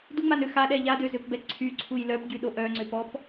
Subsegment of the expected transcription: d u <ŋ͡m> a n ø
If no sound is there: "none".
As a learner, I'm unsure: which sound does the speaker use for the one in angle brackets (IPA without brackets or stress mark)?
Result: ŋ͡m